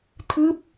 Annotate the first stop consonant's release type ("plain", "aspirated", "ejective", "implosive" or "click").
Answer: aspirated